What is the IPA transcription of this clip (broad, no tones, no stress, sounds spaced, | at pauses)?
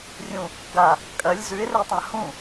rʲ ũ | ɡ a | kʼ ɐ lʲ z ʉ ɪ̯ r e tˤ ã h ũ